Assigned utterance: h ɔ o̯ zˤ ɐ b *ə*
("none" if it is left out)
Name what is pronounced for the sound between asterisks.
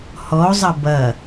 ɐ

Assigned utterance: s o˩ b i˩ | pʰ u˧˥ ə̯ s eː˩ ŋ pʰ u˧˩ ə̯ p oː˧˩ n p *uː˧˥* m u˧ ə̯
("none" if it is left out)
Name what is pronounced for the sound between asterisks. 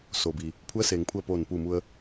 uː˧˩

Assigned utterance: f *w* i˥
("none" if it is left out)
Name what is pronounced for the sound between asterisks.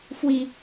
w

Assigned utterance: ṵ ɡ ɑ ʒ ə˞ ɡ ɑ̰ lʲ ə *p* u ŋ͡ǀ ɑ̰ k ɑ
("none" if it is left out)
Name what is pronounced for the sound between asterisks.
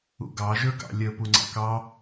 p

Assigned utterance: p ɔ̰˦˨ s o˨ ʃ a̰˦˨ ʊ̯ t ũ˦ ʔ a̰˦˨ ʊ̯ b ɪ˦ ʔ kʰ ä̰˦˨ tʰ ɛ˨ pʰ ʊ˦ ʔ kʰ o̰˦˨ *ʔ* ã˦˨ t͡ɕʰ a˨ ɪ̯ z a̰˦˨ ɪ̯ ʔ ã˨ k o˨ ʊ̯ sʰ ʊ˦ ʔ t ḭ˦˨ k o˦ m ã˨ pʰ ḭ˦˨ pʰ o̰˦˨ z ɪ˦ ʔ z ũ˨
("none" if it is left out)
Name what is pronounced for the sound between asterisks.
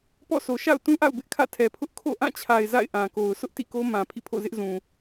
ʔ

